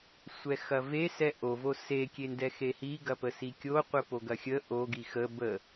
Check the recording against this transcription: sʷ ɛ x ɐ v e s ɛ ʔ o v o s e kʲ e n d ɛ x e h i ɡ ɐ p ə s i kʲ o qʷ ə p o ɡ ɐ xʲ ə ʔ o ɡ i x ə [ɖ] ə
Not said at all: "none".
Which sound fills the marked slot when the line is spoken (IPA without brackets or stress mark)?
b